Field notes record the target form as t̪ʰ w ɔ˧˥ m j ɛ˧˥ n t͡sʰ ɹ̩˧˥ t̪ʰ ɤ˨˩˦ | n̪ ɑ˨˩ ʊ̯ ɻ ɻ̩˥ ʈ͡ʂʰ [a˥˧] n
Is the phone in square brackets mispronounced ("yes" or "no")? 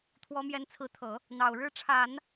yes